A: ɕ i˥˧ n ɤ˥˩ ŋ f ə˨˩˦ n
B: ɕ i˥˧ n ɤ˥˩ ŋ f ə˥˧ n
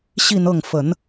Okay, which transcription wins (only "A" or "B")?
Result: A